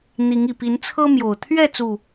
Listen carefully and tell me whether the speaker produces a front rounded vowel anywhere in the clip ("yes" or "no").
no